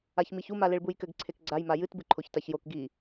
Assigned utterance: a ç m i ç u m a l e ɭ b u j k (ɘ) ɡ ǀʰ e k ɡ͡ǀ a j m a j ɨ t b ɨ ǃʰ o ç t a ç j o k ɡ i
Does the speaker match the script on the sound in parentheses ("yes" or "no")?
yes